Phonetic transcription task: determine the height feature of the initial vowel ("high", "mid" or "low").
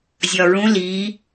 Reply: low